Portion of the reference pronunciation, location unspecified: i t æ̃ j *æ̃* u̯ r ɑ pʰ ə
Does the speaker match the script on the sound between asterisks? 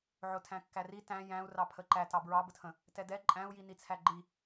yes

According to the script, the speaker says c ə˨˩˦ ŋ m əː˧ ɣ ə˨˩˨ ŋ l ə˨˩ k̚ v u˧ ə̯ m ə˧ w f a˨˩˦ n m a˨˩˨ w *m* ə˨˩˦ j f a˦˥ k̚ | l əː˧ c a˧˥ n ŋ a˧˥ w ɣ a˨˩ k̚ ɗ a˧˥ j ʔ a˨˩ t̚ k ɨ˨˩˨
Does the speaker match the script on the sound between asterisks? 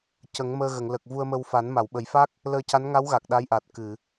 no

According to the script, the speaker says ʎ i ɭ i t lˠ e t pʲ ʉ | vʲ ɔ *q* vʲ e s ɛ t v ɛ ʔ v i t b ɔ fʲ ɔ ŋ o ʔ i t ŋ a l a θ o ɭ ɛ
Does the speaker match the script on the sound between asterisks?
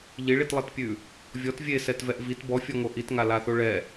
no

